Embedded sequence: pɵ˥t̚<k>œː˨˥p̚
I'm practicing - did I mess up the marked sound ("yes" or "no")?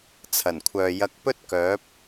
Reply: no